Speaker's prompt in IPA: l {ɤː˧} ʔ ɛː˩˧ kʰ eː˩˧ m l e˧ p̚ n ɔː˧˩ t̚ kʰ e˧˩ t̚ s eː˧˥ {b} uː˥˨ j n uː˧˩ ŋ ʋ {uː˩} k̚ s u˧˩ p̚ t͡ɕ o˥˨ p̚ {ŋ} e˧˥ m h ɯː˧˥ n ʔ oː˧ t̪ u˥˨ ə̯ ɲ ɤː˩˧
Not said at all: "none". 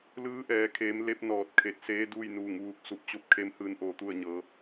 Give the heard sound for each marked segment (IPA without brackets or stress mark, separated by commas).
ɯː˧, d, uː˧, kʰ